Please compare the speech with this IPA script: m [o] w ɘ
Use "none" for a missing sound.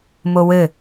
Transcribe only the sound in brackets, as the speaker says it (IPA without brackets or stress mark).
o